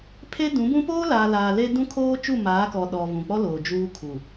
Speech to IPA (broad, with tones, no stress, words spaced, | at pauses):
pʰe˦ dũ˨˦bũ˦ poː˦laː˨ laː˨le˦dũ˦kʰoː˦ t͡ʃu˦˨maː˨˦kɔ˨ ɗɔ˨ vũ˨k͡pɔ˦ loː˨d͡ʒuː˦ kʰu˨